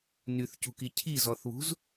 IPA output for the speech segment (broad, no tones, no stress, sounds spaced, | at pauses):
n y θ c ṳ k i cʰ i z ɔ θ β ṳ z